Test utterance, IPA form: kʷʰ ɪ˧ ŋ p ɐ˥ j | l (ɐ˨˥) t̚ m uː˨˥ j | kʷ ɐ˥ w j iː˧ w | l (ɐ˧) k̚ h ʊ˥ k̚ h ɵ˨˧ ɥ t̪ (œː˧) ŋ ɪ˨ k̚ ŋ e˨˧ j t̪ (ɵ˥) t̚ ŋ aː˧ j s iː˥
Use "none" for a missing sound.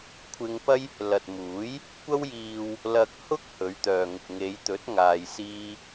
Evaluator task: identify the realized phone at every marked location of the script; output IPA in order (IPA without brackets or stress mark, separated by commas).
ɐ˨, ɐ˧, œː˨, ɵ˨˥